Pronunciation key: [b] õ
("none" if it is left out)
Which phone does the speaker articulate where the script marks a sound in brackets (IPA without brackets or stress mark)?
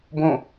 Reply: b